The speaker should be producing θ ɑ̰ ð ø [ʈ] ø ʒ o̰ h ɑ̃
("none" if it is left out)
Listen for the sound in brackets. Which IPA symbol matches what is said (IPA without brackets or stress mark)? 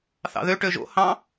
ʈ